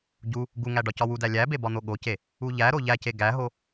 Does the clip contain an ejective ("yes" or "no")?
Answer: no